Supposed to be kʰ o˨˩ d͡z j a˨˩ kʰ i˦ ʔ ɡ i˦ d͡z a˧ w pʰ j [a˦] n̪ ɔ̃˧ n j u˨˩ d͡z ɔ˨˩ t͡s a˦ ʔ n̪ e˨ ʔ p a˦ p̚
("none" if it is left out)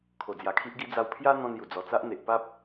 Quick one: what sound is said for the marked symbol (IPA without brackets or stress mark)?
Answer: a˦